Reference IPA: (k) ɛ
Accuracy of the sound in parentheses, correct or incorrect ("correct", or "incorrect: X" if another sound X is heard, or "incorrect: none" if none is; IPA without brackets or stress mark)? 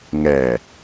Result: incorrect: ŋ